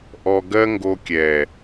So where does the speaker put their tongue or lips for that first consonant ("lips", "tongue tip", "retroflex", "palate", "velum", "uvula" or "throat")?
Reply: throat